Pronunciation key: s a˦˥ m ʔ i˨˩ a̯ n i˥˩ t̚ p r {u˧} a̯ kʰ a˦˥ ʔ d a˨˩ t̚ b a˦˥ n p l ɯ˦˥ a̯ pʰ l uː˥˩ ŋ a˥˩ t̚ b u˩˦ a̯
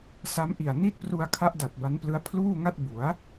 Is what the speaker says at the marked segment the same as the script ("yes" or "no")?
yes